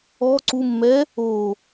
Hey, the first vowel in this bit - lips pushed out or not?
yes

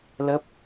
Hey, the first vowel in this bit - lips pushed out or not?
no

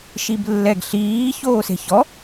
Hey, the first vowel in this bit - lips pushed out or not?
no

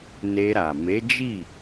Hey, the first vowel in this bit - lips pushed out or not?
no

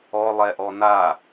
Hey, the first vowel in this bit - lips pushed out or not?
yes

